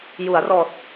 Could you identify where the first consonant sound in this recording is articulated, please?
palatal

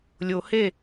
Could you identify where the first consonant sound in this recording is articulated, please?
alveolar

